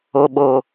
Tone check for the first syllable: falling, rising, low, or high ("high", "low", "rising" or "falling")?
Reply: low